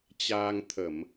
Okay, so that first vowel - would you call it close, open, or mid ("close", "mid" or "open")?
open